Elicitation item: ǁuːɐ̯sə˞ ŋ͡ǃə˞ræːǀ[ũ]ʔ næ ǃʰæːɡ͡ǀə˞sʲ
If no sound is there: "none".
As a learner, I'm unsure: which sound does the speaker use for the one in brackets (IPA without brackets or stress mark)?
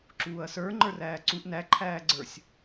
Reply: u